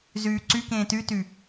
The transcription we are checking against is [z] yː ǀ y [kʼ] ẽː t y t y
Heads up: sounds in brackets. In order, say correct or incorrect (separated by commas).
correct, incorrect